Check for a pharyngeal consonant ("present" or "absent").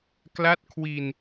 absent